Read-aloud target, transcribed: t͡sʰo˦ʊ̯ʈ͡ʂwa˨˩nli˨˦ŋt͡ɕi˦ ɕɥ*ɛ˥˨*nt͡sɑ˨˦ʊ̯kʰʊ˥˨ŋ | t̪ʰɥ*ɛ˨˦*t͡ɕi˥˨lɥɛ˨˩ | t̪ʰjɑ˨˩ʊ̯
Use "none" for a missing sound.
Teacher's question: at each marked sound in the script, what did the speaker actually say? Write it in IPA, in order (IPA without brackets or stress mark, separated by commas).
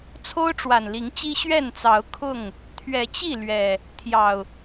ɛ˥˨, ɛ˨˦